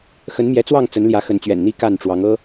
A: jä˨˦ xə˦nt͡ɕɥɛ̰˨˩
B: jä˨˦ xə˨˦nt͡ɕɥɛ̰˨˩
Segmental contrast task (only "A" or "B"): B